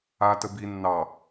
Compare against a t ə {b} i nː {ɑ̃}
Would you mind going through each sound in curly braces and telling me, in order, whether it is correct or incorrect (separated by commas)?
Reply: correct, incorrect